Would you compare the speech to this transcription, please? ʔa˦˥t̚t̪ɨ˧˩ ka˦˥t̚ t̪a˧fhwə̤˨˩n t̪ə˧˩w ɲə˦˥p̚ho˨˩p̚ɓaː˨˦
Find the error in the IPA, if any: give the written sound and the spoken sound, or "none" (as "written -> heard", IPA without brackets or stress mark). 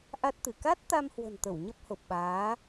f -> m